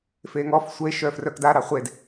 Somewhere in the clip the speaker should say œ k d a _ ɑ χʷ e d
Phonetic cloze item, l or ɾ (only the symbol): ɾ